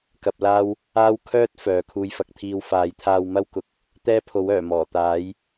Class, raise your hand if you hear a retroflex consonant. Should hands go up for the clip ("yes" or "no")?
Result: no